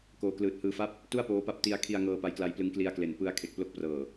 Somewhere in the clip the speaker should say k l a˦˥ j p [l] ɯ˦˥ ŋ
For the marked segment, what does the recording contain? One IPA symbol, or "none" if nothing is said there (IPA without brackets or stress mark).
l